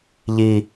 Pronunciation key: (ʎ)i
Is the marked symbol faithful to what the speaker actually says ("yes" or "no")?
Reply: yes